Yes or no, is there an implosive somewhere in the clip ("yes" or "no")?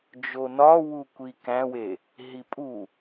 no